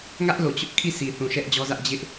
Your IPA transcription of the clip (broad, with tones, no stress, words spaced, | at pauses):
ŋä˦ʔlo˨t͡ɕʊ˦ʔ kʰi˦˨si˨ θũ˨ʃɛ˦ʔd͡ʑɔ˦zä˦ʔ d͡ʑɪ˦ʔ